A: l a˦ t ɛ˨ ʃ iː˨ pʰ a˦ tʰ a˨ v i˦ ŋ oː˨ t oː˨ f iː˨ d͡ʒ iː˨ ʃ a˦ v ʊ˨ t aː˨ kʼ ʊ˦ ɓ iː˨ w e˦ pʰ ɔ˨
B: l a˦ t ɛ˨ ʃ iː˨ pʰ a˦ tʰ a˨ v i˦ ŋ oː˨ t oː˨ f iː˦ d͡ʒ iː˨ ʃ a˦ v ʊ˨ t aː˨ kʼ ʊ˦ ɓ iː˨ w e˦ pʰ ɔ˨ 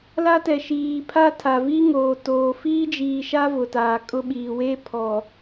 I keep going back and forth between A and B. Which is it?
B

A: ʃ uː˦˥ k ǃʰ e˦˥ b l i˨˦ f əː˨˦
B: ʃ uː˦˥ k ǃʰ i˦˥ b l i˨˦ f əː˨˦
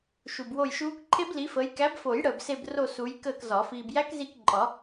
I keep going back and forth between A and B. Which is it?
A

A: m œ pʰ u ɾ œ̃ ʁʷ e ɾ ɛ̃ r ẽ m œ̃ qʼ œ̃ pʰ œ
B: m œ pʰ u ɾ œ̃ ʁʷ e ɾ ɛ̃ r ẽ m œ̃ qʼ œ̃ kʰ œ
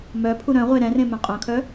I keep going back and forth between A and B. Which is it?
B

